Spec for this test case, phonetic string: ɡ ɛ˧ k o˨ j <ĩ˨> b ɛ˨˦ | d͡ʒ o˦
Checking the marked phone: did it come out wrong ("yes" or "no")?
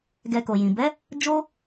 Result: no